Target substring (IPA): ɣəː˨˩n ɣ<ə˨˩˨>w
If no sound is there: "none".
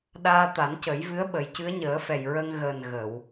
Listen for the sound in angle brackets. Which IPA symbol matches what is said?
ə˨˩˨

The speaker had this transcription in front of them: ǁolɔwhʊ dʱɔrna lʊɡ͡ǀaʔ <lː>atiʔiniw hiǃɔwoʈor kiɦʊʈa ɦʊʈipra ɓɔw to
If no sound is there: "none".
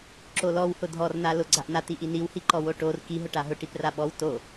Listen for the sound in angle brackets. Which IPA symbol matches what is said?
n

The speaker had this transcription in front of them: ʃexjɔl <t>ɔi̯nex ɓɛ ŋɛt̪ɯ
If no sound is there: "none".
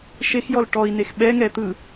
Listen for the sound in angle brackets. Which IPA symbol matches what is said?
ʈ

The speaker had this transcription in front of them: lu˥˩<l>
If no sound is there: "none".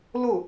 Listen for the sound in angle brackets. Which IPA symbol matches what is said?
none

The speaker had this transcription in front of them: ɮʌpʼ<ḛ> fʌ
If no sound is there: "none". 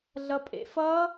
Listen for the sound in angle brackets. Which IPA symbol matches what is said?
ḛ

